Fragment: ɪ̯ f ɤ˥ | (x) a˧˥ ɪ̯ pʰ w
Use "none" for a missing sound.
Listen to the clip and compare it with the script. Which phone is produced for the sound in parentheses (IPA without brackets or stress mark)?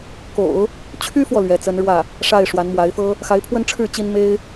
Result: x